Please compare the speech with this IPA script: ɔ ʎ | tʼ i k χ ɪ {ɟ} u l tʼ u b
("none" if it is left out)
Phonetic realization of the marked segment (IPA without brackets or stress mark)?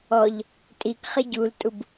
ɟ